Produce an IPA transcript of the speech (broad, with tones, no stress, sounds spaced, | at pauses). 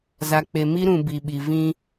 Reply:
z a˨ k͡p e˨ m i˦ ɾ ũ˨ b i˨ ɓ i˨ v ĩ˦